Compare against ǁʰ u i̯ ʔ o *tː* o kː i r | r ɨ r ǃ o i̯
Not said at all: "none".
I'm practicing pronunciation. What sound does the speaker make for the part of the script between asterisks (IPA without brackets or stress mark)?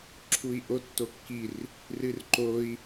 tː